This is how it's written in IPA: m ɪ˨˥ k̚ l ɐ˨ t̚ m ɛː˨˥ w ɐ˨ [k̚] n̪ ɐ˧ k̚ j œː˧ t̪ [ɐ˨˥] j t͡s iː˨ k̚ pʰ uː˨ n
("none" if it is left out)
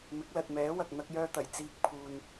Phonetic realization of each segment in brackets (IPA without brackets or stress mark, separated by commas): k̚, ɐ˨˩